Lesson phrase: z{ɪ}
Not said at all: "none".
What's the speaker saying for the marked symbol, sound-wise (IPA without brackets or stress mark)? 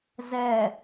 ɛ